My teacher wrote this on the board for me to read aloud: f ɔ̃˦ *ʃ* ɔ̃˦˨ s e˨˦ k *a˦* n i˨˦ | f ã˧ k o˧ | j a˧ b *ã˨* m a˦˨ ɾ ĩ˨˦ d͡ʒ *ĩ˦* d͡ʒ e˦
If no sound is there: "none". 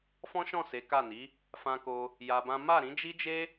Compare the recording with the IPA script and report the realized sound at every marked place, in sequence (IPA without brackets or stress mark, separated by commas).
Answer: ʃ, a˦˨, ã˦, i˦